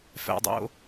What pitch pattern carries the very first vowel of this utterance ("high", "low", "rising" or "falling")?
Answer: low